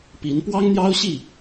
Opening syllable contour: rising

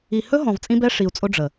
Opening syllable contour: low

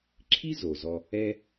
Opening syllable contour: high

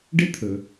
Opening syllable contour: high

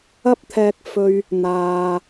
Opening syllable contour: high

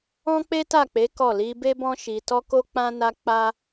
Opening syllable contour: high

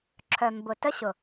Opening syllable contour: low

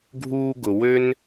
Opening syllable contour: high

